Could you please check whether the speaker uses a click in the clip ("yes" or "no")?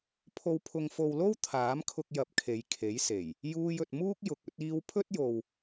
no